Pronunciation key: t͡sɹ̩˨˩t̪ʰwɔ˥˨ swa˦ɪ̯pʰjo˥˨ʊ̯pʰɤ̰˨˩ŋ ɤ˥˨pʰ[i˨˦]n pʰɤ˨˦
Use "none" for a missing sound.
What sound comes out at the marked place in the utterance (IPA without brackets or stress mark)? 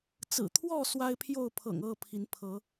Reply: i˨˦